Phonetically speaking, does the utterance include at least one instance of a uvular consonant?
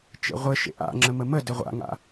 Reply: yes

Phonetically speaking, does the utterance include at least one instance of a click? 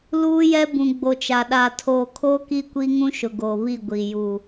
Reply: no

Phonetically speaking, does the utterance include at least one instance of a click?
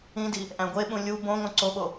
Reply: yes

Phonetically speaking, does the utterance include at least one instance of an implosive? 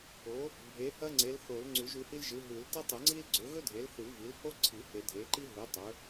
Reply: no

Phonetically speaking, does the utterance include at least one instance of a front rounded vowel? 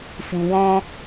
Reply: no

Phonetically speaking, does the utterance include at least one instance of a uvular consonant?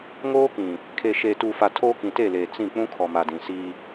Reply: no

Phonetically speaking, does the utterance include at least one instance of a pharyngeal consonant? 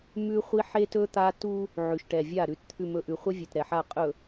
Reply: yes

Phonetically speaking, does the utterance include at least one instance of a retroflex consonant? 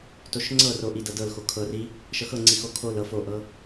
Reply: no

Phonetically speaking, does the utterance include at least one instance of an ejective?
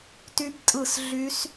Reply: yes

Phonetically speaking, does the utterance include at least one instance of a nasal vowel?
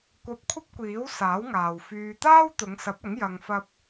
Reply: no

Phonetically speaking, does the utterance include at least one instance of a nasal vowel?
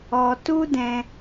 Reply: yes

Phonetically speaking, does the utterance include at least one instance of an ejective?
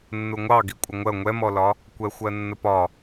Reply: yes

